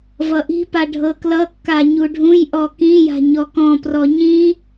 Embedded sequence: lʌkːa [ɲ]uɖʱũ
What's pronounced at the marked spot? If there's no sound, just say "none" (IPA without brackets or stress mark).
ɲ